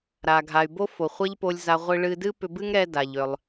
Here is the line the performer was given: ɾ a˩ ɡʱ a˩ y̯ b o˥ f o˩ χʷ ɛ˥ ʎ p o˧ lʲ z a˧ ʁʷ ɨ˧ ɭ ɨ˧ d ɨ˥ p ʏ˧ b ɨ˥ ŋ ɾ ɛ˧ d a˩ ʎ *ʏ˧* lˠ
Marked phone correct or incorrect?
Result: incorrect